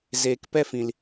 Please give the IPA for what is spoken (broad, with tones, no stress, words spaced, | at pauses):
zeː˨kpɛ˦fĩ˨l